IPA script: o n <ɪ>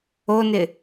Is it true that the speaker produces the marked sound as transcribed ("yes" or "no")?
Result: yes